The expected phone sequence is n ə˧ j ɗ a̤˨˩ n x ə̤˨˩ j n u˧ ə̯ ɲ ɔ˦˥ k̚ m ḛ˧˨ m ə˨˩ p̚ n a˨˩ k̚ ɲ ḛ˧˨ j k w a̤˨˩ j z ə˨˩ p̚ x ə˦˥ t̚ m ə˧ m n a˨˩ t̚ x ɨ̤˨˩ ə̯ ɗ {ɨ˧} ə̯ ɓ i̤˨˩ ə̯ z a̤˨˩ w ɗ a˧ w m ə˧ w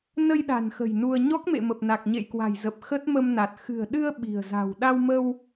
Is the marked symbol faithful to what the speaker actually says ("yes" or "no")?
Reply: yes